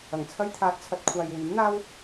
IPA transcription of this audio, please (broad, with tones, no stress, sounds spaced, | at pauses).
ɐ˨˩ ŋ t͡sʰ ɐ˥ j t̪ʰ aː˧ t̚ t͡sʰ ɐ˧ t̚ kʷʰ aː˨ j w yː˨˥ m n̪ aː˥ w